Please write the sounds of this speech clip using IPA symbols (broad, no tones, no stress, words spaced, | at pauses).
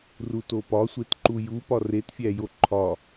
rutopɒ sʷetǃuju pɒretfʲæjo ǃʰɒ